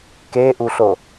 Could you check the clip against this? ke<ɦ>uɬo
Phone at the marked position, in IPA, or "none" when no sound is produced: ʔ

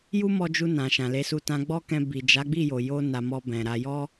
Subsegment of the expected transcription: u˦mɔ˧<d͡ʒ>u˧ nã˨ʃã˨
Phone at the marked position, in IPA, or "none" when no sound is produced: d͡ʒ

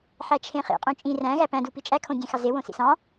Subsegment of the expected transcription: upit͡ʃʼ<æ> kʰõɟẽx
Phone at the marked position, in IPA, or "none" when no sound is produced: æ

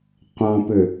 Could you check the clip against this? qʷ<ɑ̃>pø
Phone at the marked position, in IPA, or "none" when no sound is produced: ɑ̃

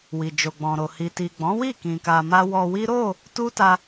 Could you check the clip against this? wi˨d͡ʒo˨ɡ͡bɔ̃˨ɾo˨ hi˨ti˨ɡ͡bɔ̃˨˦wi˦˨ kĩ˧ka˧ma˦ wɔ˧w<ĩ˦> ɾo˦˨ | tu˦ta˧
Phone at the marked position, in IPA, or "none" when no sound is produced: i˦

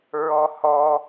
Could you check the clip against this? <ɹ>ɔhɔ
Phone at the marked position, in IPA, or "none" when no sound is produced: ɹ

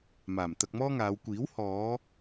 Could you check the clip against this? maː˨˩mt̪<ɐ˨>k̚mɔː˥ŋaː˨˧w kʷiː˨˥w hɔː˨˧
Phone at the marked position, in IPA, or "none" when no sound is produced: ɐ˧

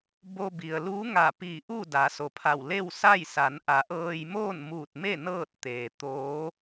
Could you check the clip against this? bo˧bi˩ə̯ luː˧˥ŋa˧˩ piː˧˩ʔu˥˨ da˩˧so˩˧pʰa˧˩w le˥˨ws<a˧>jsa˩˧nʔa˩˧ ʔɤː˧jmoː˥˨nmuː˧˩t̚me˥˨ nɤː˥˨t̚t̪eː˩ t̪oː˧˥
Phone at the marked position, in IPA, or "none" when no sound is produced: a˥˨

